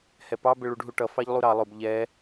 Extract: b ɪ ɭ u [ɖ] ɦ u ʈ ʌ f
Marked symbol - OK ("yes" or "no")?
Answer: yes